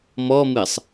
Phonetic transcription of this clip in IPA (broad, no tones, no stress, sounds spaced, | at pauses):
m ɔ m ɨ sˤ